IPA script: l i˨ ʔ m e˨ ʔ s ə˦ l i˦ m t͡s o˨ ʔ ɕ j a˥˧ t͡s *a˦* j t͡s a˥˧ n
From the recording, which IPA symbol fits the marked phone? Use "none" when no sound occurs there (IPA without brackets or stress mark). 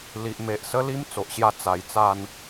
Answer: a˨˩